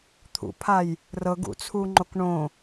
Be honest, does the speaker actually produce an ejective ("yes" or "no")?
no